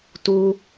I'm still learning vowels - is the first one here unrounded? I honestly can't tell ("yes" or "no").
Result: no